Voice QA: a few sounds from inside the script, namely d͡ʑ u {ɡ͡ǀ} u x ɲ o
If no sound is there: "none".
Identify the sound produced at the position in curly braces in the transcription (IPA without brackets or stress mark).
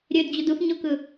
d